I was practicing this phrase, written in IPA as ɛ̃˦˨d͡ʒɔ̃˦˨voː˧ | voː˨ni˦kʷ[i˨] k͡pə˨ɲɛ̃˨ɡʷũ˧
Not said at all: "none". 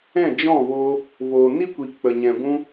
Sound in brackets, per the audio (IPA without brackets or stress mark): i˨